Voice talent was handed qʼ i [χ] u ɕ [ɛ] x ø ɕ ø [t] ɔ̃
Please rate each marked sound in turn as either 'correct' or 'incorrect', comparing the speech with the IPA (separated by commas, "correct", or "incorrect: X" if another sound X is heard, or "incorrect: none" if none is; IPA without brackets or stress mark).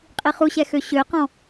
correct, correct, incorrect: q